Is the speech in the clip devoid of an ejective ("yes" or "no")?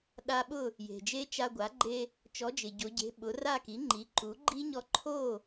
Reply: yes